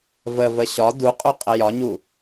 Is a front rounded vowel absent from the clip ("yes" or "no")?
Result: yes